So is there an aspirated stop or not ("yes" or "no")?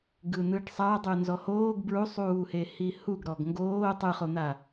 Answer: no